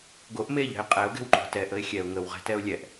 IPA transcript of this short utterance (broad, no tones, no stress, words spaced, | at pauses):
ɡoʔ meʎɛ̤ɪ̯ qʼɛʊ̯ɡɛ̤wǃo̤ tɛʔəɪ̯ xʲɛʊ̯ ŋəwʁɛ̤tɛʊ̯ lʲɛʔ